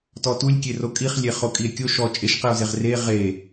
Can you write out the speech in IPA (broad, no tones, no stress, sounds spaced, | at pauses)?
t ɔ t u lʲ kʲ e r o kʼ i χ lʲ e χ o kʼ i e̯ kʲ o ʃ ɔ t͡ʃʼ e ʃ q i o̯ z e ʁ r e ʁ e